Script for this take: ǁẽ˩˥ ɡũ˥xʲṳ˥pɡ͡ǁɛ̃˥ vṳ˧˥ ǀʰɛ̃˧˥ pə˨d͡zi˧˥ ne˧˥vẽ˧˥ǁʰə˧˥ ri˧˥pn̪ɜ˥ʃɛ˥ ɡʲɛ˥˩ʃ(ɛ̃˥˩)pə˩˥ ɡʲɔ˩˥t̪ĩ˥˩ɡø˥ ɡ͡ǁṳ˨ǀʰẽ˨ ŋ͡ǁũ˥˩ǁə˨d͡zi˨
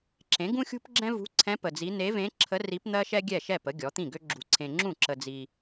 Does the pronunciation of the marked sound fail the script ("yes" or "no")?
yes